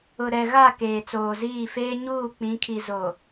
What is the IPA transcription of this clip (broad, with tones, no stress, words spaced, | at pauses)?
ʊ˨ɾɛ˨ɣa˦˨ keː˨t͡soː˨ziː˦˨feː˦ ɲuː˦˨ k͡pĩ˨˦kʰi˨ zo˨